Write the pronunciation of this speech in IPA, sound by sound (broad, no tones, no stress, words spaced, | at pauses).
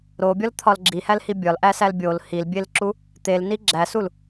ɾobʲɒlt̪ʰɒl ɡ͡ǁihælhi bʲɒlʔæsæl bʲol hilbʲelǁu | t̪elni ɡ͡ǁæsul